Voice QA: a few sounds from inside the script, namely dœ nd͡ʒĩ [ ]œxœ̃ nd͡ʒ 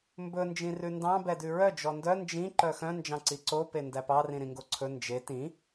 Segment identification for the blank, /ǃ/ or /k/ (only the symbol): ǃ